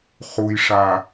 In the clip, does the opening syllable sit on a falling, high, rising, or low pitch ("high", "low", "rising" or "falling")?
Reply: low